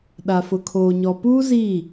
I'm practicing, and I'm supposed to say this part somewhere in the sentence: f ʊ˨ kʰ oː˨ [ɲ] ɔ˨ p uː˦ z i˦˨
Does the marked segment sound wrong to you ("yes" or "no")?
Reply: no